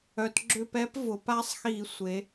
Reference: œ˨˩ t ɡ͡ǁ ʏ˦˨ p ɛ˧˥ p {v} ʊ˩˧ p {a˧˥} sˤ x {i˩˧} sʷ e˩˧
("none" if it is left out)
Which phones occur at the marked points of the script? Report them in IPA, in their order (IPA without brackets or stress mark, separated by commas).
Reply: v, a˧˥, i˧˩˧